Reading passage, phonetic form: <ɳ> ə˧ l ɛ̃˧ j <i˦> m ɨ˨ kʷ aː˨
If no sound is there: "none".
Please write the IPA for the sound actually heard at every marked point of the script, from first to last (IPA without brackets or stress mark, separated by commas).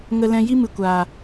ŋ, i˦